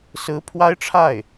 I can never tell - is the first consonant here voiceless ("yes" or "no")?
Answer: yes